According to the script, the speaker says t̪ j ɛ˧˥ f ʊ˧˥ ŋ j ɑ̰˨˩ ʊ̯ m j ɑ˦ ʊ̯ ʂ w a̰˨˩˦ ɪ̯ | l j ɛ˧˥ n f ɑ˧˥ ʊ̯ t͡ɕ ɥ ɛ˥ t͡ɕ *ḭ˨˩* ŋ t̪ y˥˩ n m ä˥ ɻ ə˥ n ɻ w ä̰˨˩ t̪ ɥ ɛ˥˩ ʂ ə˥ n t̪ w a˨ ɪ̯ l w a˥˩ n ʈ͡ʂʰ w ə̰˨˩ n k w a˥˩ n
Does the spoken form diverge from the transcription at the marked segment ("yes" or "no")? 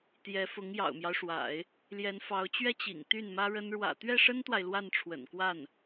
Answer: no